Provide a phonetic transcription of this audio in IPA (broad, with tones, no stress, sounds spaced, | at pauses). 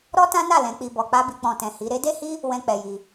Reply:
ɾ ɔ˦ t ã˦ n a˦˨ l ɛ̃˨˦ k͡p i˧ b ɔ˧ k͡p a˦ b i˧ k͡p ɔ̃˨ t ɛ̃˨ h i˨˦ ɾ e˦ d e˦ h i˦ | w ɛ̃˦ k͡p ɛ˧ j i˧